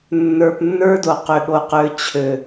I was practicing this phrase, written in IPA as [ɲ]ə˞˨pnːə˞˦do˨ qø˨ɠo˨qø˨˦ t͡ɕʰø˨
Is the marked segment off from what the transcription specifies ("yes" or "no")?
yes